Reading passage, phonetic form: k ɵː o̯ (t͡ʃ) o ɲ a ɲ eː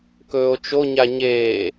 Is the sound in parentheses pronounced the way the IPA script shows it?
yes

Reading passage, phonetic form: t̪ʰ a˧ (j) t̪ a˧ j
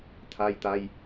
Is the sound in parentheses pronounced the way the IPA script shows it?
yes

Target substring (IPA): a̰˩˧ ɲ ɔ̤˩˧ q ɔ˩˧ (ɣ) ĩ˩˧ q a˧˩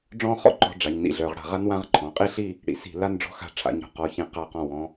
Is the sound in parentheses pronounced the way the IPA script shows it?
no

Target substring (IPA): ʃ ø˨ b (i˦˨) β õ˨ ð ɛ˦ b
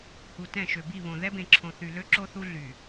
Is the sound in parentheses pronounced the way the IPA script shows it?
yes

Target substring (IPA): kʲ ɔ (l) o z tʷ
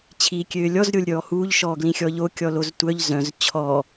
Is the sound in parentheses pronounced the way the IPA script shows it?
yes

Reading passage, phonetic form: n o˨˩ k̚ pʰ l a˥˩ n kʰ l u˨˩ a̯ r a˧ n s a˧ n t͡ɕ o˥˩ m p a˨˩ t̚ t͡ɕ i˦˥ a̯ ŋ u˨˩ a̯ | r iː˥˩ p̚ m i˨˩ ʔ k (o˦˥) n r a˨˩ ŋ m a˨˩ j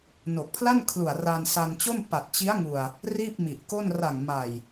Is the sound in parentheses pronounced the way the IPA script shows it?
no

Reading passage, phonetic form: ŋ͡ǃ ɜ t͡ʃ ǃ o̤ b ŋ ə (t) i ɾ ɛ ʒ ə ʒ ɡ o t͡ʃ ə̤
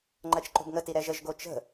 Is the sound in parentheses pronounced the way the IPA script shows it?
yes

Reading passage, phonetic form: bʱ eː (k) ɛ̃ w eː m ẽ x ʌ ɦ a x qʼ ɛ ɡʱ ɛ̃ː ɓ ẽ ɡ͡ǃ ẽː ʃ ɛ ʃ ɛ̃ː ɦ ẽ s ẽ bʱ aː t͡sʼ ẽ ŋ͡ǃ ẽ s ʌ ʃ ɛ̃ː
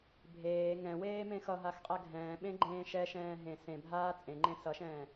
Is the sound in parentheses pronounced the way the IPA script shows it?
no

